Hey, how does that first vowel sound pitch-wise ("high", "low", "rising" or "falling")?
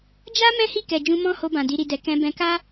high